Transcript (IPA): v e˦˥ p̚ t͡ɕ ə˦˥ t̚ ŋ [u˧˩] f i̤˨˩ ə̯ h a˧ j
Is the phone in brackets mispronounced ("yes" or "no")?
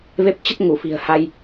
no